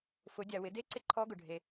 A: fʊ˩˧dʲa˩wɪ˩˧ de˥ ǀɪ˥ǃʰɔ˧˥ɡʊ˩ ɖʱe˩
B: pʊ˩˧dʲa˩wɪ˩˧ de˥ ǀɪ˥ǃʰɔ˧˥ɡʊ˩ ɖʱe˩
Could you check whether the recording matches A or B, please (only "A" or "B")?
A